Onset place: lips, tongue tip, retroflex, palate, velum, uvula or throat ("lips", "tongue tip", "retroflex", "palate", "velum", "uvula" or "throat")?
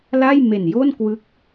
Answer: tongue tip